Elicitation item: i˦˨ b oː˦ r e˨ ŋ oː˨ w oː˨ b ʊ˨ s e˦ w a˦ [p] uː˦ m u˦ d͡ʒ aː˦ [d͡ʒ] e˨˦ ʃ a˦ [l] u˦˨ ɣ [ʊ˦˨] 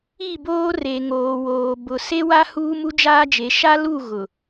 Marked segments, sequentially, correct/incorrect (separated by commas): incorrect, correct, correct, incorrect